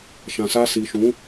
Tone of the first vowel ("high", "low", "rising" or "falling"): low